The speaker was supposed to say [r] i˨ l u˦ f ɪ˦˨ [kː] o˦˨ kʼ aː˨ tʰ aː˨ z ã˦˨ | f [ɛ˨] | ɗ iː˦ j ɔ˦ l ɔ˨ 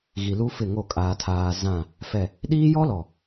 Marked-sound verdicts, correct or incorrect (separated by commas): incorrect, incorrect, correct